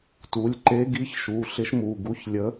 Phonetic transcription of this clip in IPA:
t u˩˧˩ lʲ ǃ e˧˥ ɡ i˧˥ ç ʃ u˩˧˩ ɬ ɪ˧˥ ʃ m u˩˧˩ ɡ u˧˥ ç lʲ ə˧˥

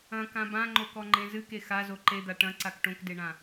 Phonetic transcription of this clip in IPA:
ɐ̃ k ã b ã ŋ͡ǃ o k ɔ ŋ͡ǃ ẽ z ɨ k e x a z o ǃ e d̪ a ʈ ɐ̃ ǀ a k ʈ õ k d e ɳ ã

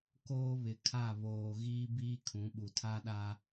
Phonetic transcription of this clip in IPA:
k oː˦ β ɪ˨ kʰ a˦˨ β oː˨ ɣ iː˦ b iː˦ kʰ ũ˨˦ ɓ u˨ tʰ a˦ ɗ a˦

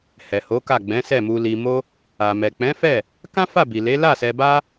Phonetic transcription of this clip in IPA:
h ɛ˨ h o˨˦ k a˦˨ ɡ͡b ɛ̃˨˦ s ɛ˦˨ m u˧ l i˧ m o˦ | a˨ m ɛ˨ k͡p ɛ̃˨˦ f ɛ˦˨ | k ã˦ f a˦˨ b i˨ l e˨˦ l a˦˨ s ɛ˧ b a˦

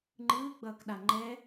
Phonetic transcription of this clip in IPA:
ŋ͡ǃ ɯː ɡ͡b ʌː k ɗ a ŋ͡ǃ ɛ

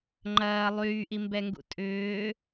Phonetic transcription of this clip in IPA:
ŋ͡ǃ ɐː lˠ yː ʔ i m b ɛ ŋ ɡ ṵ tʼ ʏː

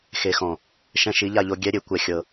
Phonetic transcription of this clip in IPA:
x e˨ x ɔ̃˨ | ʃ ɛ̃˧ ʃ i˨˦ ʎ a˧ ʎ o˧ ɡʲ ɛ˦ ɾʲ e˧ kʷ ɛ˧ xʲ ɤ˧

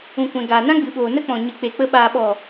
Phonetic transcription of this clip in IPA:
ũ˨ kʷ ɛ̃˨ ɡ aː˨ n ã˦ ɡ͡b ɨ˨ ɓ oː˨ n ə˦ k͡p ɔ̃˨ ɲ ɨ˨ k͡p e˨ k͡p ə˧ ɓ aː˨ ɓ ɔ˨

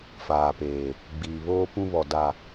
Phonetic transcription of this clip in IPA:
f aː˨ p eː˨ | ɡ͡b iː˨ β oː˦ p ũ˦ β ɔ˨ d a˨

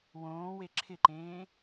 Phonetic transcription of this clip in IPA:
w õː w e ǁʰ ɪ ǃ ẽː

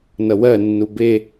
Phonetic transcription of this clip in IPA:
n ʌ w ɜ nː u b e

